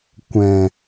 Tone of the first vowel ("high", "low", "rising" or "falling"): low